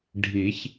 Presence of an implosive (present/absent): absent